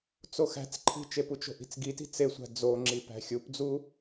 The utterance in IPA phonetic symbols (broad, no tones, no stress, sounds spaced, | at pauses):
t͡s o x æ̤ t͡s ǃʰ i̤ t͡ʃ e p u t͡ʃ o̤ ʔ i̤ t͡s ɡ i t i̤ t͡s e sʷ æ̤ d͡z o ŋ͡ǁ i p æ̤ xʲ u p d͡z u